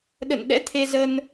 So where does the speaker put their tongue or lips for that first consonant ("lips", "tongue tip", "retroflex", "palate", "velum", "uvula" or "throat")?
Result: tongue tip